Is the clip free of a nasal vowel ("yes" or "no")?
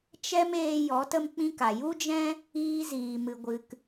no